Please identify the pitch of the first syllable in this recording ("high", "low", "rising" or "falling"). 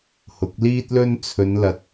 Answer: rising